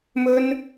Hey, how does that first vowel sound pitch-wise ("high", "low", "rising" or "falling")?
high